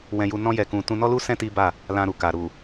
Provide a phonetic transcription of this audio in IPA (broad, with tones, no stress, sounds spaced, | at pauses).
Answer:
w ɛ̃˧ j u˧ n ɔ̃˦ j ɛ˧ k ũ˧ t ũ˧ n ɔ˦ l u˦ s ɛ̃˦ t i˦ b a˦˨ | l ã˧ ɾ u˨ k a˨ ɾ u˨